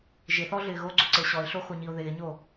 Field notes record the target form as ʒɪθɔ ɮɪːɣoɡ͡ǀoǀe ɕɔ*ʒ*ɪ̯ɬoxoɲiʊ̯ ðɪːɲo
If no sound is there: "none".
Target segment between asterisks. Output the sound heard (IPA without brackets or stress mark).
none